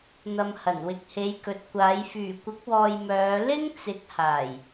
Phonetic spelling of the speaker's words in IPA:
n̪ɐ˨mhɐ˨˩n wɪ˨k̚he˨˧jkɵ˨t̚kʷaː˨˧j fyː˨˩kʷɪ˨˥k̚wɔː˨j mœː˨˧ lɪ˥ŋ t͡sɪ˨˥k̚haː˨˩j

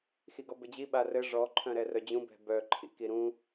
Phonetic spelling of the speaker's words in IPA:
xiɡɔbɘd͡ʑi ɓarɘ ʐɔ ǃʰœ̃ɾɛrœd͡ʑũ bɛ̤bœ ǃʰḭkiɾũ

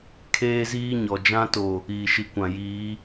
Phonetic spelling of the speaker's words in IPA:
kʰeː˦ziː˦ɲɔ˨ d͡ʒã˦to˨ | iː˨ʃi˨kʷã˨ jiː˨˦

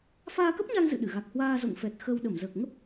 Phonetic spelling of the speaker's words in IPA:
faː˧kə˦˥p̚ɲa˧ŋ zɨ̰˧˨ɗɨ˧˩ɣa˨˩k̚ hwaː˧zo̰˧˨ŋfɛ˨˩t̚ xə˧w ɗə˧˩mzəː˨˩k̚ŋə˦˥p̚

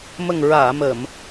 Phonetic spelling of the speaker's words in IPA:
mə˨˩ŋɹaː˨˩˨mə˨˩˨m

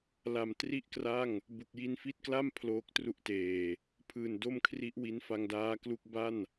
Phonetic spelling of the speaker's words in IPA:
la˨˩mtri˥˩ʔkra˥˩ŋ | bu˨˩k̚ji˧nfi˦˥t̚kla˥˩m pʰloː˦˥k̚tru˦˥ʔteː˨˩ | pʰɯː˨˩ndo˥˩mkʰri˦˥ʔwi˦˥n fa˧ŋdaː˦˥klu˦˥k̚ ba˥˩n

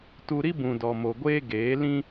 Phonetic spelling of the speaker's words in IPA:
tu˧ɾi˦bũ˨ dɔ˨mo˨ɡʷeː˦ ɡeː˨˦lĩ˦

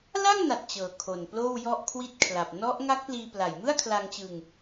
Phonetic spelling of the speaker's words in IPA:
la˥˩ŋna˨˩t̚ t͡ɕɤː˨˩kʰo˨˩nploː˥˩w jɔ˥˩ʔkʰwi˥˩t̚kʰla˨˩p̚ nɔ˦˥ʔ ŋa˦˥k̚pliː˧pla˨˩j mɯ˥˩a̯kʰla˧ŋt͡ɕɯ˧ŋ

